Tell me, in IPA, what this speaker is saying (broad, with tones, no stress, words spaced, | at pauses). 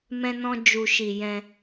mɛ̃˧nɔ̃˧ d͡ʒu˨ʃi˨ jɛ̃˧